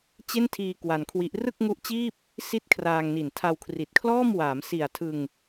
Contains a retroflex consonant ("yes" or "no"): no